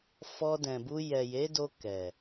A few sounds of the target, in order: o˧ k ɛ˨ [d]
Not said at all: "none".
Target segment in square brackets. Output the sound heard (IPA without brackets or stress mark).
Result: none